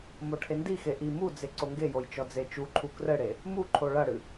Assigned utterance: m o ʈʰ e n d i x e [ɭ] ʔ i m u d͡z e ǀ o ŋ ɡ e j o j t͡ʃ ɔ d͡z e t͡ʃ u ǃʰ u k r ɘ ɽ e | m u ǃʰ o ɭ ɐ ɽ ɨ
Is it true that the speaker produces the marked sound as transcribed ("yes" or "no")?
no